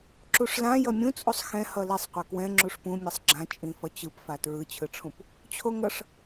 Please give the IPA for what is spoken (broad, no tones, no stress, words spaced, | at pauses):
ǁuʂlã jʌmʲũt͡sʼusˤ xɛ̃ hʌlisˤqʷʌ kwɛ̃ ŋ͡ǁuʂpũ mʲʌsˤɡ͡ǁã t͡ʃʼĩfʌt͡ɕɯpfa tɹɯt͡ɕʰɯʈ͡ʂʰũp | t͡ɕʰoŋʌʂ